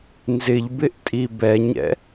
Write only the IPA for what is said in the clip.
nzɪʎbɪʔ tʼibɛɲɛ̰

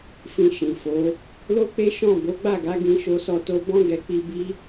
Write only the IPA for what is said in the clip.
fĩ˧ʃĩ˨ fo˨˦ | lo˦k͡pe˦ ʃɔ̃˦˨ bo˨˦ɡ͡ba˦˨ɡa˨˦ ɡĩ˦ʃo˦sɔ˦to˦ bɔ̃˦ɡɛ˧k͡pi˧ bi˦

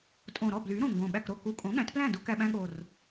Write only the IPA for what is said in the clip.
tʼõ˨˩ɾɔ˥˩ bly˩˥ ɾõ˨˩ŋɡõ˨˩ ɓæ˥˩kɾo˥˩ ku˨˩kʼõ˩˥ ɠæ̃˩˥tplæ̃˥˩du˧ kæ˧ɓæ̃˧ɠo˨˩r

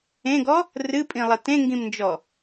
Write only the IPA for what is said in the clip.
ẽɡɔ | rɨpʼĩlˠɐ tẽŋɡĩmnd͡ʒɔ

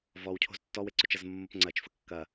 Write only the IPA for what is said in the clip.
vɔwcʰo̤z tːɔweǀɵt͡ʃɐz mːopŋ͡ǀɐt͡ʃfə kːɐ

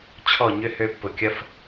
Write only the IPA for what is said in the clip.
t͡ɕʰɔ˦˨ ɲʏ˦hø˧pːʊ˨ kʲɐ˦f

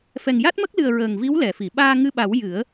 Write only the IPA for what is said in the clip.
fɛ˨˩ŋja˦˥t̚mə˦˥k̚lɨ˨˩ə̯ ɹəː˨˩ŋvi˧˥wlɛ˨˩˨fi˨˩˨ ɓaː˧ŋɨ˧ɓa˨˩˦w jɨ˨˩˦ə̯

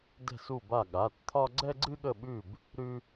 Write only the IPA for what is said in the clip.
dɛ̤˦˨su˦˨ba˦˨ ɠa˩˧˩tt̪ʰɒ˦ ɡ͡ǀɛ˦ɡ͡ǀɨ˦ɠə˦˨ɓʉ˦˨b | ɾʉ˦

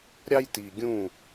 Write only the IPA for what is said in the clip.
ɾʲɑ˦jti˨ɡʲũ˦˨

